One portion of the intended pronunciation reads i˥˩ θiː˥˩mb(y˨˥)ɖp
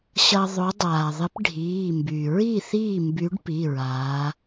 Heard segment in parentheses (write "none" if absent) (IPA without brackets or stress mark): y˨˥